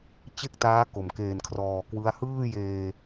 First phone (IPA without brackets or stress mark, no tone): t͡ɕ